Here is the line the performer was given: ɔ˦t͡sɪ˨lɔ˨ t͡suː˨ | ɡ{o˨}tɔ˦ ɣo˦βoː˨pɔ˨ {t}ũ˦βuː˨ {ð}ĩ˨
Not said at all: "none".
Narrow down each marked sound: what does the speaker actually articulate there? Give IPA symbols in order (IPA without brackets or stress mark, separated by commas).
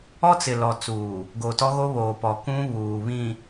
o˨, k, β